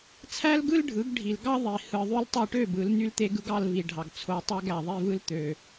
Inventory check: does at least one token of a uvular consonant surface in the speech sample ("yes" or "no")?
no